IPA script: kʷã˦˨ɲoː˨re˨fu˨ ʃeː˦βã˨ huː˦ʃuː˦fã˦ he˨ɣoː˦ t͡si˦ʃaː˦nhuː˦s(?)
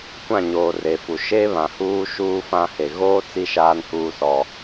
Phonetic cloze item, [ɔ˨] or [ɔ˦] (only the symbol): ɔ˦